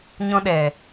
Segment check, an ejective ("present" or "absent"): absent